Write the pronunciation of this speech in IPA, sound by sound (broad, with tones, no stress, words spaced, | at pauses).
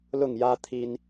lʊ˥˨ŋjä˦ t̪ʰi˦n